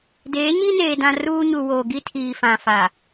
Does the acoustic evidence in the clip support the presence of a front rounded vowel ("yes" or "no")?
no